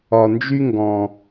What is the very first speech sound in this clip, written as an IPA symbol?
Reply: ɒ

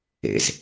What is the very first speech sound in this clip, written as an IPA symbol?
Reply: ḛ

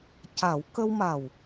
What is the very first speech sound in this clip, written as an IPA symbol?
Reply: c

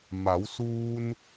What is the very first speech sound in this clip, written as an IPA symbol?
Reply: m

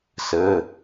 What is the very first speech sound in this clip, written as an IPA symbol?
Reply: s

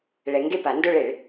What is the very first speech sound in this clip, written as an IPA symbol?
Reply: ɭ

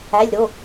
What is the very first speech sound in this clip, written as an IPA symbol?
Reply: æ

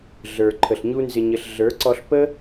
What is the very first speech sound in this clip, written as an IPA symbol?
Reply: ɮ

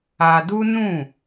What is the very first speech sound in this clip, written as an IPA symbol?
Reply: a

